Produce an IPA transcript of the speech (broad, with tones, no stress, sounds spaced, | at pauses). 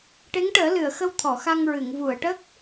ʈ e˧˥ ŋ ʈ əː˨˩˦ l ɨ˨˩˨ ə̯ x ə˧ w t̪ʰ ɔ˨˩˨ x a˧ ŋ ɹ ɨ˨˩˨ ŋ v u˨˩˨ ə̯ ʈ ə˦˥ k̚